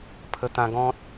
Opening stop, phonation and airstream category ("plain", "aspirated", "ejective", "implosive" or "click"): aspirated